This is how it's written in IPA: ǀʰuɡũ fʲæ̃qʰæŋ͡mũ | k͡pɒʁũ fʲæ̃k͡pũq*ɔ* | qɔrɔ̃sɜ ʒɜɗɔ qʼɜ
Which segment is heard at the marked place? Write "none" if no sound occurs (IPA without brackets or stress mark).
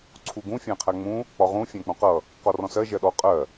ʌ